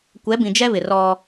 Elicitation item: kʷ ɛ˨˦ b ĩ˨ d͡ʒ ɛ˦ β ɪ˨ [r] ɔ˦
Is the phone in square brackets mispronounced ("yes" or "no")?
no